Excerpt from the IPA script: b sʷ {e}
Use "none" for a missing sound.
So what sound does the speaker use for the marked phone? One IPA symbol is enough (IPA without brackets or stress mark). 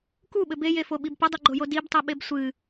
ɨ